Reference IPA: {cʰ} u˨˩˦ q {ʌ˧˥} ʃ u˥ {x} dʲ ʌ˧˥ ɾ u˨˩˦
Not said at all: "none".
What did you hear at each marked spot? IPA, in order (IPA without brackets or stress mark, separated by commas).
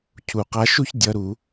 cʰ, a˧˥, ç